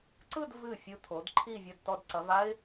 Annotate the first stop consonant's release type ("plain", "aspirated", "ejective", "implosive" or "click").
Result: click